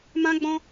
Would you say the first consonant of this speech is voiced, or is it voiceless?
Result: voiced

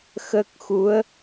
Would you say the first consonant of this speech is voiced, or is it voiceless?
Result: voiceless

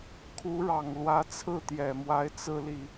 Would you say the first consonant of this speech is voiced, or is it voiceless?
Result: voiceless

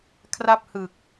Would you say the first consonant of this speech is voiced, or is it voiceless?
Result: voiceless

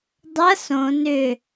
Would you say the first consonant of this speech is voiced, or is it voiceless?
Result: voiced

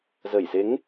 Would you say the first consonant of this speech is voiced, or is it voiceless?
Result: voiced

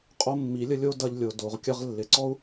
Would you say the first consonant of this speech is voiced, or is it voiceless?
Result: voiceless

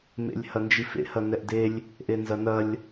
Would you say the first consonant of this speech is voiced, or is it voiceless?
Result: voiced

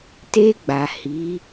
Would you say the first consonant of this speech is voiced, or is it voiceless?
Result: voiceless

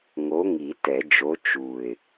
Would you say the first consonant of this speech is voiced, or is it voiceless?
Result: voiced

